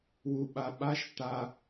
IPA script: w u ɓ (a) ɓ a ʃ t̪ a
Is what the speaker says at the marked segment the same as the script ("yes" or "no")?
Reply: yes